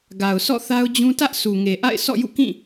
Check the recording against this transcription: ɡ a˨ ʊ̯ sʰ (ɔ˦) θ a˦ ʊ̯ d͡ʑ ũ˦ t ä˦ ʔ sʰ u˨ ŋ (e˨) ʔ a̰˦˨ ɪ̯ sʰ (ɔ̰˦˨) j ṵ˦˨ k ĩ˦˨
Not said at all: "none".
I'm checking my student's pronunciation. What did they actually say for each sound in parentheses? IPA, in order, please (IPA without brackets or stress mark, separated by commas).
ɔ̰˦˨, e˨, ɔ̰˦˨